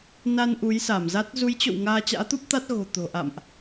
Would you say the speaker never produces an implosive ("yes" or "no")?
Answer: yes